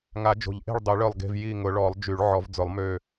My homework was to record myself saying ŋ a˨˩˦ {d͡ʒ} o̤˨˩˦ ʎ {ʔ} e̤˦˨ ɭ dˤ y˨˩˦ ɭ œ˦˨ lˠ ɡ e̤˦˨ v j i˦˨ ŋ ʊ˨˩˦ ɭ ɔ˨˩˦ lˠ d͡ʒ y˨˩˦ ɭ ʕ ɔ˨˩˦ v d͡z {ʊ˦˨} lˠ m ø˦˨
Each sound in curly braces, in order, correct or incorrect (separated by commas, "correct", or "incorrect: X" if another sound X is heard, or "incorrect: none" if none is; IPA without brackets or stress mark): correct, correct, incorrect: ʊ˨˩˦